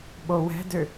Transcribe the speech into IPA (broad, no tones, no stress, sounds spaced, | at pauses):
ɓ o w ɛ̤ d ø